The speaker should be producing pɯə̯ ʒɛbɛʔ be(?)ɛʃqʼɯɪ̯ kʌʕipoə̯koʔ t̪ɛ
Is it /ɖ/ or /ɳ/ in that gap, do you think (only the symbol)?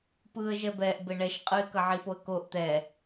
ɳ